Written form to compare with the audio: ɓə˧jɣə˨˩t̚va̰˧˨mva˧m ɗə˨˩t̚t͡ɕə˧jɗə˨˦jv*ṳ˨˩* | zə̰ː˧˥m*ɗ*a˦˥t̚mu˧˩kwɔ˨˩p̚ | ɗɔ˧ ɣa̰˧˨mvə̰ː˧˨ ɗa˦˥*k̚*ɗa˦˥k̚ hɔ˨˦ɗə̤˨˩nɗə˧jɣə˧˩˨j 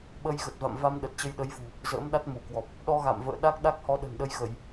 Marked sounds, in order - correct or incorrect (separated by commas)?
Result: correct, correct, correct